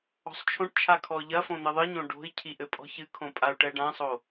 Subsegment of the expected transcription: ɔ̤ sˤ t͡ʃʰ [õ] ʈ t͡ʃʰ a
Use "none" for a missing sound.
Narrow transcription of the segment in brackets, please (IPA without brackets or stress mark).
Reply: õ